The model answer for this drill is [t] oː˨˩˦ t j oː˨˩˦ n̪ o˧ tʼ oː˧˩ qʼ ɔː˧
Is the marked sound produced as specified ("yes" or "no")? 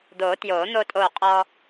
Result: no